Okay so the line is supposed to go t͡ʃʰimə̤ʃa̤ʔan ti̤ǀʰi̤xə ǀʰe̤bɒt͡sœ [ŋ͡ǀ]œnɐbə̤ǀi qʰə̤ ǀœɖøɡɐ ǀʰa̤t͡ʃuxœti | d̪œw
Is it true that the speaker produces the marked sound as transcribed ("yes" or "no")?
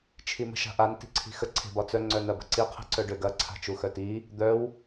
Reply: yes